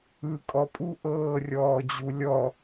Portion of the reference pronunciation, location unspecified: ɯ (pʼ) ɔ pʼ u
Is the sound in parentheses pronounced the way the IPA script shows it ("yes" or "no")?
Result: no